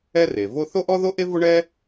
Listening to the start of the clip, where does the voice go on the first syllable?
high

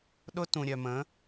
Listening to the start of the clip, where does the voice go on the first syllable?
high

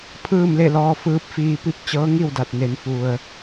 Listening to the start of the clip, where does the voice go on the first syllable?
falling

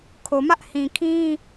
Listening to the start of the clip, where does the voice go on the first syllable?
low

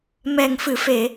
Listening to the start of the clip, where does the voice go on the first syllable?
low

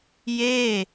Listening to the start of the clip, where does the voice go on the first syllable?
falling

